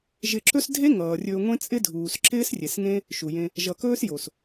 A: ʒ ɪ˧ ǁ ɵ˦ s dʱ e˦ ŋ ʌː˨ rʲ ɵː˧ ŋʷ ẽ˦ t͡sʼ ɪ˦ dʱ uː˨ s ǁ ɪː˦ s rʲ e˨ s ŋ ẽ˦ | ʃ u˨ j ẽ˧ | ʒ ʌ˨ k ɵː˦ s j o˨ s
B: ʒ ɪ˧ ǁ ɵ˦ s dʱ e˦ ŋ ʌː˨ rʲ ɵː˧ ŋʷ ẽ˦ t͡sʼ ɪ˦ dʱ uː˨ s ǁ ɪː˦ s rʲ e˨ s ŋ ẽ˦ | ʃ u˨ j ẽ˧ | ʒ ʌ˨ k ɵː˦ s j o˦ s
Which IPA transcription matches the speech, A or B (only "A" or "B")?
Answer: A